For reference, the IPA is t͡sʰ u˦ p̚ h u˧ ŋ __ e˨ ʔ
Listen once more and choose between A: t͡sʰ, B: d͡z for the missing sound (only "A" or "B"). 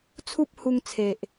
A